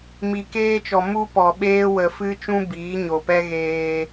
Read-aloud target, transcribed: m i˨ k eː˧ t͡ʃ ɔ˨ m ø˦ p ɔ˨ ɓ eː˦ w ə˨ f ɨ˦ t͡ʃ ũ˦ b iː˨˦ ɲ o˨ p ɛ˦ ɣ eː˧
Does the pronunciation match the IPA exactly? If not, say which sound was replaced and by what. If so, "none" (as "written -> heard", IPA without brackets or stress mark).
ø˦ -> u˦